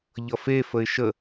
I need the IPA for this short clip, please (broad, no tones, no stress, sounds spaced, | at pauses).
ʎ ʌ f e f ə ɪ̯ ʃ ə